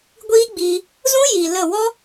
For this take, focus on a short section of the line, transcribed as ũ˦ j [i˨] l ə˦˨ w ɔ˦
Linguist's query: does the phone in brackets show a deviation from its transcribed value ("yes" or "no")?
no